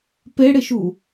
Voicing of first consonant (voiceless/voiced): voiceless